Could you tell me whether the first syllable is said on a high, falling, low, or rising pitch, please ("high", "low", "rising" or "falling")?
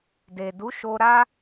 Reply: low